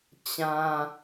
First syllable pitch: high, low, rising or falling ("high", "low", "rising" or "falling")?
high